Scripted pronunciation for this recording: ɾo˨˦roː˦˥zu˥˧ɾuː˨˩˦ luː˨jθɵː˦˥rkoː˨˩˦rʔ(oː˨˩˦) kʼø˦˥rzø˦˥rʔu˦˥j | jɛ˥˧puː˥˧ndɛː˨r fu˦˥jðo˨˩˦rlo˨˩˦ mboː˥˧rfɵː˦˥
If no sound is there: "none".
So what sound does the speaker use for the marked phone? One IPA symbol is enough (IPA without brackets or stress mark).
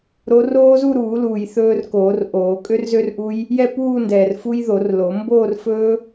oː˨˩˦